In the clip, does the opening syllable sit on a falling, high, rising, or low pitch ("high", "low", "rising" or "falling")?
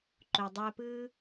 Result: low